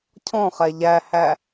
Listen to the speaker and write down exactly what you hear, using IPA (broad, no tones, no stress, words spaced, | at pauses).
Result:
cʰɔ̃χɛ ʎæhæ